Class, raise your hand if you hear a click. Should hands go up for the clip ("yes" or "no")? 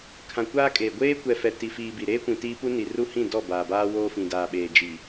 no